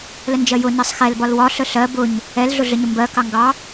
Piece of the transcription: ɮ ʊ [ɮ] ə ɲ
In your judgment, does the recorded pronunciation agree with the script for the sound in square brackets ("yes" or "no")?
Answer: yes